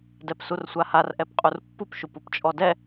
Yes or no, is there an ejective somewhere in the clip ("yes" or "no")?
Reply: yes